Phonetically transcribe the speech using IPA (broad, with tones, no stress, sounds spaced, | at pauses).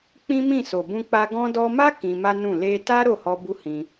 k͡p ĩ˦ m ĩ˦˨ s o˨ b ũ˧ k͡p a˧ ɡ ɔ̃˦ d ɔ˦ m a˦ k ĩ˧ m a˦ n ũ˦˨ l e˧ t a˦ ɾ o˦˨ h ɔ˧ b u˦ h ĩ˧